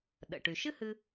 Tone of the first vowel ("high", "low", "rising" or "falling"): low